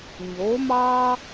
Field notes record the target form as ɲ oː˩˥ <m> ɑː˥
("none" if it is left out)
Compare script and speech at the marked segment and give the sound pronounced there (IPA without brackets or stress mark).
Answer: m